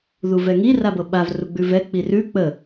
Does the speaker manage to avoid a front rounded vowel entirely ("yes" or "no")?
yes